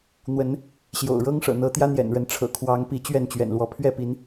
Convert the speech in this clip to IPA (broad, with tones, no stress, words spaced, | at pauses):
n̪wə˨˦n | ɕjo̰˨˩ʊ̯ɻɤ˦ŋ ʂɤ̰˨˩n̪ɤ˨˦t̪jä˦ n̪jɛ̰˨˩nɻə˨˦nʈ͡ʂʰɤ̰˨˩ kʰwɑ˨˦ŋ pi˨˦ t͡ɕɥɛ˥˨nt͡ɕɥɛ̰˨˩nlwɔ˨˦ pʰɥɛ˥˨pi˨˦n